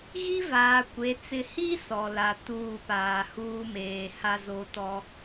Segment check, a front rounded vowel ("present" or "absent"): absent